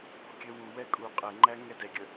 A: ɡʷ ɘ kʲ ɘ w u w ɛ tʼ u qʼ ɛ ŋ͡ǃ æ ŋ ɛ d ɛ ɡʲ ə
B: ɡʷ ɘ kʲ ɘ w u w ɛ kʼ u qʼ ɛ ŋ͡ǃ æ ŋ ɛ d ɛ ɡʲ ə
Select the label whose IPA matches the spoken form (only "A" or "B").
B